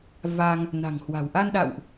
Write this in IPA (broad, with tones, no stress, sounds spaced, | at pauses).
v a˧ ŋ | n a̤˨˩ ŋ h w a̤˨˩ w ʔ a˧ n ɗ a̰˧˨ w ʔ